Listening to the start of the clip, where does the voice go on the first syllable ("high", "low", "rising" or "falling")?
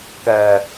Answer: low